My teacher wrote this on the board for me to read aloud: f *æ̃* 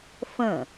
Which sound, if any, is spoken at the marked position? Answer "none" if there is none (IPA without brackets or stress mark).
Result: ə̃